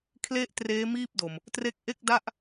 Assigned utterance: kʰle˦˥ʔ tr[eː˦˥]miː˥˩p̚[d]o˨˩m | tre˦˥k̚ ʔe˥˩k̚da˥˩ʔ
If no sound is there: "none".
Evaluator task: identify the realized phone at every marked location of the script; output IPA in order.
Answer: eː˦˥, d

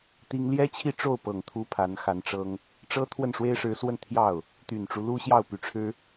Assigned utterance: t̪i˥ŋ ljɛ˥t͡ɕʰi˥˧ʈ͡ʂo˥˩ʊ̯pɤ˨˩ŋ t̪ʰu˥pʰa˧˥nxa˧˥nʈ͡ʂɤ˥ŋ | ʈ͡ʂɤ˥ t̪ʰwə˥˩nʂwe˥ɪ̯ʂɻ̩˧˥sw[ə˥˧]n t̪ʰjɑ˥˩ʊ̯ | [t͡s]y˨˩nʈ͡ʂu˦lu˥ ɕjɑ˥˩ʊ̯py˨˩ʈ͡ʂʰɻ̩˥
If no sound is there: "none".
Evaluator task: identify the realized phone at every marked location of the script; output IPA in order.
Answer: ə˥˧, t̪

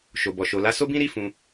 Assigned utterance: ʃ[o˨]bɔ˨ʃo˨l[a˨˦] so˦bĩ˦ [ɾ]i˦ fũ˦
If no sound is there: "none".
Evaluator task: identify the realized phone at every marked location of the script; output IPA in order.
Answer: o˨, a˨˦, ɾ

